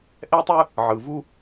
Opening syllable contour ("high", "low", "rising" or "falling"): high